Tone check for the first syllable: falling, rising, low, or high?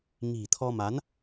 low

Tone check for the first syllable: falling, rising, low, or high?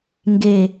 low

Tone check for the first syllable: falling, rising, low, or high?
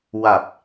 low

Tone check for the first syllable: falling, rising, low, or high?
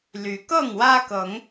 rising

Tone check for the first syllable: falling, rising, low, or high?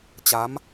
rising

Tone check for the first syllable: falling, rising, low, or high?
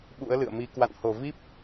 rising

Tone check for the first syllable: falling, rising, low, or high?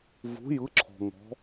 rising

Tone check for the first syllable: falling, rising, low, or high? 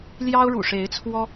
high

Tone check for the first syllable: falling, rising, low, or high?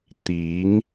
rising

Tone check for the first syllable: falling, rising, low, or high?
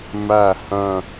falling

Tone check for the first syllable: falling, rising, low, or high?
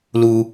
high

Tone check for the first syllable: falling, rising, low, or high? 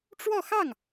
falling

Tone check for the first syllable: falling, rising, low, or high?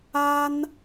high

